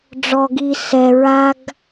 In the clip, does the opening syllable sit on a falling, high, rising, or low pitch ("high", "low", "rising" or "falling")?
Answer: low